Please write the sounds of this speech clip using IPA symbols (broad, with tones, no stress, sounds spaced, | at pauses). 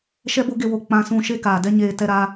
ʃ ɛ˦ b o˦ ɡ e˧ w o˨ k͡p ã˧ s ũ˧ ʃ e˦ k aː˨ d ɛ˦ ɲ eː˧ t ɛ˦ ɾ aː˦